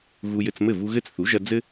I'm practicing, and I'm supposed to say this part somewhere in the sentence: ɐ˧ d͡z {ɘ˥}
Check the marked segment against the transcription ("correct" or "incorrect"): correct